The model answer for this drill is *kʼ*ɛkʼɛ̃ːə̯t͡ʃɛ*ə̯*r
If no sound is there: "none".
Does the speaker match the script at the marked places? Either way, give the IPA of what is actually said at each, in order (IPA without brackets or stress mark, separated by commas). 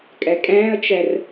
kʼ, none